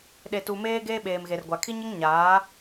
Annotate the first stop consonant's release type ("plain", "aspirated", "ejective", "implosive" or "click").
implosive